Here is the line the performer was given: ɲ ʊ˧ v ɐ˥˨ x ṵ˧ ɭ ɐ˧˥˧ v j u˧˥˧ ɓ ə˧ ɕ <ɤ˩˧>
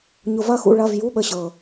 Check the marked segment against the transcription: incorrect: ɤ˨˩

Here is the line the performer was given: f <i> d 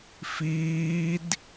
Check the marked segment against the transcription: incorrect: iː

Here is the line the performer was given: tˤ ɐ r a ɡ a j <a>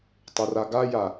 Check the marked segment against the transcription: correct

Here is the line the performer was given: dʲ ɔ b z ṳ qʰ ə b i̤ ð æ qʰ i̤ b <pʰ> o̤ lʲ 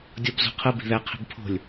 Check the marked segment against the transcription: correct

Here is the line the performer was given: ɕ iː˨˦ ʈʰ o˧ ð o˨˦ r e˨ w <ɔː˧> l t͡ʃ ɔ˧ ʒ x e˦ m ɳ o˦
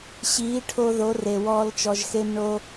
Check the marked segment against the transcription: correct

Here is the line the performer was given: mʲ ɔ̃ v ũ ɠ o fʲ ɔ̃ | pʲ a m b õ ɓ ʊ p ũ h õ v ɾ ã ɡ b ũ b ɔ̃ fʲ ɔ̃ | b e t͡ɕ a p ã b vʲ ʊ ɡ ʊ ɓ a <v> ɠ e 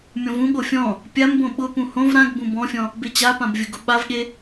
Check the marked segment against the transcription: correct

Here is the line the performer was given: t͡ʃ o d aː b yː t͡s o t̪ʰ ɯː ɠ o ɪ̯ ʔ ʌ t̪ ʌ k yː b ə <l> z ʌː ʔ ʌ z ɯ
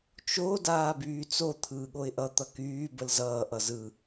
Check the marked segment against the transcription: correct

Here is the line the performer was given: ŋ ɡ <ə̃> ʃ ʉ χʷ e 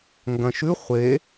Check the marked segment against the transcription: incorrect: ɐ̃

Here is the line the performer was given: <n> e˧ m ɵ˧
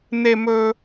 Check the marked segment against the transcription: correct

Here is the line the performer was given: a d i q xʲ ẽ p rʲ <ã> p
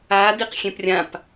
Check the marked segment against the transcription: correct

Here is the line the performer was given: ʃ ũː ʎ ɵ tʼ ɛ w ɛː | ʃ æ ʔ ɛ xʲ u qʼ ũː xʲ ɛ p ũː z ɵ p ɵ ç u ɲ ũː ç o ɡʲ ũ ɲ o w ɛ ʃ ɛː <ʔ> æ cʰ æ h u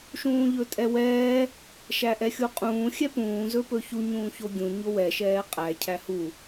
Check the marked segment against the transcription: incorrect: qʼ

